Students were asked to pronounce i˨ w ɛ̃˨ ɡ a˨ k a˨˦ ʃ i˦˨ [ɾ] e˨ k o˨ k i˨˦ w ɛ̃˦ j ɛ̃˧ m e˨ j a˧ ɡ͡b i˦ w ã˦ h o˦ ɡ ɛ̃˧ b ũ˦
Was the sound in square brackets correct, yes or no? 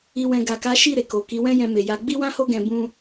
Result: yes